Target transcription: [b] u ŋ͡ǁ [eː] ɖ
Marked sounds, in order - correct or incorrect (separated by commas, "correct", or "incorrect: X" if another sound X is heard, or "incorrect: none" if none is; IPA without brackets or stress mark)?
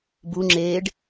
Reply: correct, correct